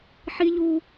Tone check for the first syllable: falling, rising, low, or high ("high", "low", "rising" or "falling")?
high